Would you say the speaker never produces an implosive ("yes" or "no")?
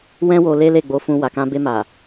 yes